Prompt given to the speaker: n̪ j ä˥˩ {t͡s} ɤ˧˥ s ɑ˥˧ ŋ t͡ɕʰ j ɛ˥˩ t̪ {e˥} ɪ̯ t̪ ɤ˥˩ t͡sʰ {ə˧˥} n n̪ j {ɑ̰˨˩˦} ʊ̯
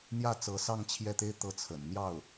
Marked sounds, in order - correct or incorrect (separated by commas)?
correct, correct, incorrect, incorrect